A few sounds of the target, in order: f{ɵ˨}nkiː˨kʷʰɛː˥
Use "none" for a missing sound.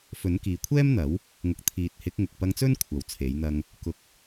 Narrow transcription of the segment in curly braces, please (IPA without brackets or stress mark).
ɵ˨˥